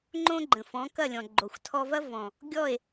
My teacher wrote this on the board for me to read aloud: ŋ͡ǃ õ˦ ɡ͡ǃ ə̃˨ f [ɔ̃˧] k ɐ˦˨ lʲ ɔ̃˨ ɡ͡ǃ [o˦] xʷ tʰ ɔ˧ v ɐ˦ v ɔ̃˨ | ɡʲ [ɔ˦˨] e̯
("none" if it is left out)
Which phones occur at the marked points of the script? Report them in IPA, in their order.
ɔ̃˨˦, o˨, ɔ˦˨

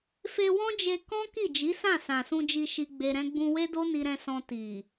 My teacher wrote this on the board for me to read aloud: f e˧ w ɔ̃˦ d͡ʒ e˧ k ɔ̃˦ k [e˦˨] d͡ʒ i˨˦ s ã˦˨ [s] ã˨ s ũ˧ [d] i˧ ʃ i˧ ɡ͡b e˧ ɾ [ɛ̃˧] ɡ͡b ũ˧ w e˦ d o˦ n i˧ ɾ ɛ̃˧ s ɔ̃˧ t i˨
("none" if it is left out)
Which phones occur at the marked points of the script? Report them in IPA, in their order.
i˦˨, s, d͡ʒ, ɛ̃˧

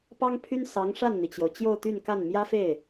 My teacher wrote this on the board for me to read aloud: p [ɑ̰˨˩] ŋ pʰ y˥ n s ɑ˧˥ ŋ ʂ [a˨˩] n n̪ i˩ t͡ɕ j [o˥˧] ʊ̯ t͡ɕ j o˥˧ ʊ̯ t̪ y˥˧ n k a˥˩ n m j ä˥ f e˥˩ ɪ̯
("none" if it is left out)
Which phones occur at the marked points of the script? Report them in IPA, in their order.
ɑ˥, a˥˩, o˩

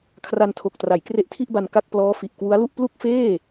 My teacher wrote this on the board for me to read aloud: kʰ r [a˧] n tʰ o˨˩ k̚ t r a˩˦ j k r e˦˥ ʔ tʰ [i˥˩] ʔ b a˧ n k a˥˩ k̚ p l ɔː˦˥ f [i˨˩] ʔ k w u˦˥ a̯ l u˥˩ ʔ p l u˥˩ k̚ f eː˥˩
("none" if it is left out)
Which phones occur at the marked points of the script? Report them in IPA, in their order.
a˧, i˥˩, i˨˩

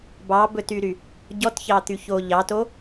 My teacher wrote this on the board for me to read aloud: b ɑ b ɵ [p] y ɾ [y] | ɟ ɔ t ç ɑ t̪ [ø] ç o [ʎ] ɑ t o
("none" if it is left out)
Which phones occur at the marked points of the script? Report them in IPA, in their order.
t, y, y, ʎ

